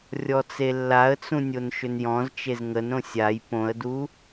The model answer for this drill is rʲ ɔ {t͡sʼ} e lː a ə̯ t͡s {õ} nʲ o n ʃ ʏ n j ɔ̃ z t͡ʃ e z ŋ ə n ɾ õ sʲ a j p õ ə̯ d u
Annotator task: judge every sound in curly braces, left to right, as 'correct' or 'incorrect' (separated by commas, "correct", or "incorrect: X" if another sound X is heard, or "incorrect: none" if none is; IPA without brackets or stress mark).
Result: incorrect: t͡s, incorrect: ũ